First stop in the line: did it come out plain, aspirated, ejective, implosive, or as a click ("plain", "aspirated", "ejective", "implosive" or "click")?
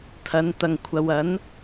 aspirated